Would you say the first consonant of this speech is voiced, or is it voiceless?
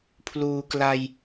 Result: voiceless